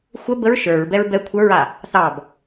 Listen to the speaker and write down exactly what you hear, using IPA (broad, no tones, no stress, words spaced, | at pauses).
xʷə bəɹ ʃə˞ɹbɛɹ bɛ kʷʰə˞ɹa | θɑb